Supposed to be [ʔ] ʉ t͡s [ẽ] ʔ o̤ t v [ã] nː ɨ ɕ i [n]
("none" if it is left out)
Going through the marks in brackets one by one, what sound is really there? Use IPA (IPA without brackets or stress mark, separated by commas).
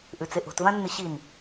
ʔ, e, ã, n